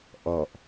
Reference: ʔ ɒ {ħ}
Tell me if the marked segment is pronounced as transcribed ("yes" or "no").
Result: no